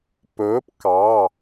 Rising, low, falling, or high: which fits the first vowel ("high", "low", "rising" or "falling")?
rising